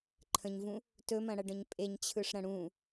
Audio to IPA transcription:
ǃʰ ə̃ ɲ v ũ | t ɵ m ɐ̃ ɽ ɐ ɖ ə̃ ɲ pʼ e ɲ t͡ɕʰ ɯ ʂ ɾ ɐ̃ ɽ ũ

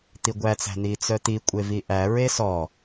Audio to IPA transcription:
t̪ i ɡʷ æ t͡s æ̤ n̪ i t͡s œ t̪ i kʷʼ e v i ʔ æ ɹ e s ɔ

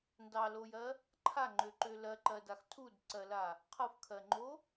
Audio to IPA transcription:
n d ɑ l o j ɜ | ǃʰ a ŋ͡ǃ ø ǃ ø l ɜ ǃ ɜ d a x tʰ u d ǀ ɜ l a | qʰ ɤ f kʰ ɜ ŋ͡ǃ o

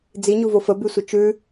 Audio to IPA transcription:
d͡z i ɲ u v o f ə b y sʷ ə t͡ʃ ʉ

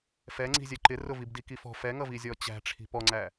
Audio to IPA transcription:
f ɛ ŋ͡ǀ i̤ zʲ ɛ ǃ ɪ r ʊ v i b d i k i f ɔ̤ f ɛ ŋ ʌ v i zʲ ɔ t͡ɕ æ̤ ʈ͡ʂʰ i̤ p ɔ ŋ͡ǀ æ

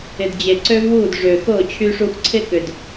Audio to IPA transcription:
ɪ˨ d d͡ʑ e˨ ǀ ø˦ v w uː˦˨ d ʐ ø˨ x ʊː˦˨ t͡ɕʰ y˦ ʂ u˦ x ǀʰ ɪ˦ k ʏ˨ d

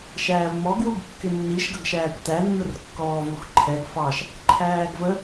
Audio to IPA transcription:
ʃ æː v m ɔ ɡ w u ɡ kː ɪ nː i ʃ ɡ ʌ ɡ ʃ æː kʷ t æ nː ʊ r kː ɔː v u x ǃʰ ɛ ɡ f ɑ ʃ | ǃʰ æː ɡ v ə

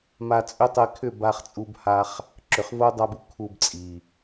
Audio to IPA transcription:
m a˧ t͡sʼ ʏ˦ tˤ ɛ˧ kʰ ʏ˦˨ b a˧ χ t͡sʼ u˧ b h a˧ χ | ǁ ʏ˨ χ v o˦ dˤ a˧ b u˨ kʰ u˧ b t͡sʼ i˨

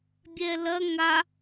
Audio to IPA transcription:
bʲ ɛ l ɐ ŋ a

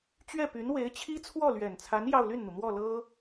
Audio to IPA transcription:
t͡ɕ ɥ ɛ˥˩ p y˧˥ n w e˧˥ ɪ̯ t͡ɕʰ i˥ t͡sʰ w ɔ˥˩ l ɥ ɛ˨˩ n t͡sʰ a˧˥ n j ɑ˥˧ ʊ̯ l y˥˩ n n̪ u˩ n̪ w ɔ˥˩ l ɤ˥

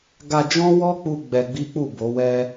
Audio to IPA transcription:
ɡ a˧ d͡ʒ ɔ̃˦ w ɔ˦ k͡p u˧ ɡ͡b ɛ˧ ɡ͡b i˦ k͡p u˦˨ b o˨˦ w ɛ˦

